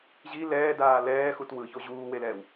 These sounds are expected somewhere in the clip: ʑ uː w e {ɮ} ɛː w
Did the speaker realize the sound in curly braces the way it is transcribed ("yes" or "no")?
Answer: no